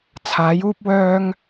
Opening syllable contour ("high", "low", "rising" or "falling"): rising